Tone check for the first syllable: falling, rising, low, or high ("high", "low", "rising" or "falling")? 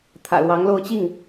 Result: low